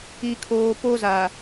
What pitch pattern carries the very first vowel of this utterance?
low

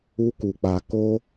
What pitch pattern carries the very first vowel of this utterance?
high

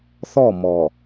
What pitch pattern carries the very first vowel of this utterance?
falling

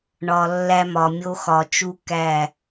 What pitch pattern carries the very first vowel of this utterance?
low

